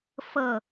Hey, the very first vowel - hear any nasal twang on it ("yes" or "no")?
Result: no